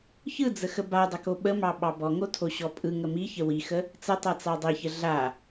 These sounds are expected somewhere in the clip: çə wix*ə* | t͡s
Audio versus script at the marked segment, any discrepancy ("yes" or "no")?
no